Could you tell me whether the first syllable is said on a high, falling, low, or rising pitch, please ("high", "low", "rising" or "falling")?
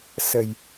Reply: low